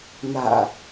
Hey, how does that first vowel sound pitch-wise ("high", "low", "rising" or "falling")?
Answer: low